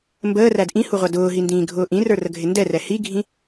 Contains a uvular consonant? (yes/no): yes